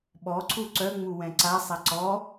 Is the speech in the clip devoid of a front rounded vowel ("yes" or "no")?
no